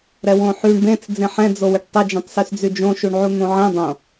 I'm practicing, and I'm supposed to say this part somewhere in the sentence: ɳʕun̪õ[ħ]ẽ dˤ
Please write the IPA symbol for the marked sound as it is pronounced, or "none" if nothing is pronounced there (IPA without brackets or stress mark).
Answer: ʕ